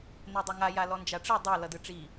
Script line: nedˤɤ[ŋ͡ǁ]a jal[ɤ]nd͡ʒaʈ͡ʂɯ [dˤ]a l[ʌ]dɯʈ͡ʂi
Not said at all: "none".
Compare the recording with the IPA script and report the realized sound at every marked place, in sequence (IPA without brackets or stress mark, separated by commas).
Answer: ŋ, ɔ, dˤ, ʌ